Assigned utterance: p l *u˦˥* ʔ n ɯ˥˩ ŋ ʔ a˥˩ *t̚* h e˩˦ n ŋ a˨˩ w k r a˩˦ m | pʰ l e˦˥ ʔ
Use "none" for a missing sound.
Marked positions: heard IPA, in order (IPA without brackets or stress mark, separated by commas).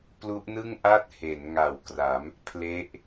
u˦˥, t̚